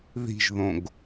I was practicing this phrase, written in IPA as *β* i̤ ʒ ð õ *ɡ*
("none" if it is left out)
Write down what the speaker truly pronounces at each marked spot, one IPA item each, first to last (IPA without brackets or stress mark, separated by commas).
ð, ɡ